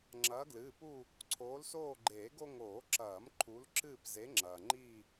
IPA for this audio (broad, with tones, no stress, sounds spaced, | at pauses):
ŋ͡ǁ ɐː˨˦ ɡ l ɨː˩˧˩ p u˦˨ | ǀʰ oː˨˦ l s oː˦˨ ɡ͡ǃ eː˨˩˦ ɡ o˦ ŋ oː˨˩˦ ǁ ɐː˨˩˦ m ǃʰ u˨˦ l ǁ ɨː˦˨ p z e˨˦ ŋ͡ǁ ɐː˩ ŋ͡ǃ i˦˨